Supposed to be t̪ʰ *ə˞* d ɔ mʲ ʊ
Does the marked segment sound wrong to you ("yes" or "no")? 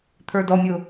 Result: no